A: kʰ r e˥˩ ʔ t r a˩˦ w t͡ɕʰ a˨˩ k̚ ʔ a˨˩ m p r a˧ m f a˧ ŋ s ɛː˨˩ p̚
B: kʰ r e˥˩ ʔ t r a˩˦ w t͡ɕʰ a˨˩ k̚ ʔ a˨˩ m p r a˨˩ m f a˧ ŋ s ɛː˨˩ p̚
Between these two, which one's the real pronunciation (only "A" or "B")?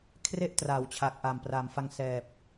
B